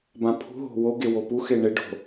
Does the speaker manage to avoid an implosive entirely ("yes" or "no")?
yes